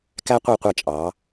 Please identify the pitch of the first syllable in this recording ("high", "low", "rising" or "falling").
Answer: high